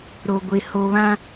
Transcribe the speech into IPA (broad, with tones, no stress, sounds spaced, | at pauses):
ɾ o˨ ɡʷ e˨ h o˨ β ã˦